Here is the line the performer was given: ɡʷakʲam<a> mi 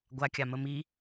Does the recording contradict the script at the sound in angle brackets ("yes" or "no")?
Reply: yes